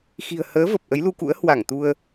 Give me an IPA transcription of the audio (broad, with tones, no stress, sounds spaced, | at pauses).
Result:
x i̤˨˩ ə̯ h əː˨˦ v ə˨˩ p̚ ʔ ə˨˦ j l u˧ k ṵ˧˥ ə̯ h w a˧˩ ŋ t̪ u˧ ə̯